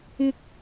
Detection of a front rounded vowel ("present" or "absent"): absent